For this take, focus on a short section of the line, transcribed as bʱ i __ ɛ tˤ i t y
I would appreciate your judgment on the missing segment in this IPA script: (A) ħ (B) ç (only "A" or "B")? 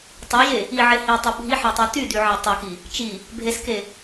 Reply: A